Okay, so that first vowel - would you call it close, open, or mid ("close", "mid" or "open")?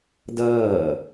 mid